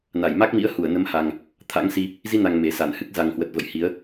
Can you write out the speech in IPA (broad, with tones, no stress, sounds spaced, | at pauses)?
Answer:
n a˧˩ j m a˦˥ k̚ m ḭ˧˥ ə̯ h u˧˩ ə̯ n ə˨˦ m h a˨˩ ŋ | t̪ʰ a̰˧˥ ŋ s i˧ | z i˧ n a˨˩ ŋ m e˨˩ s a˧˩ n h ɨ˦˥ k̚ z a˨˩ ŋ h w ə˨˩ t̚ v ə̰˧˨ j h i˨˦ ə̯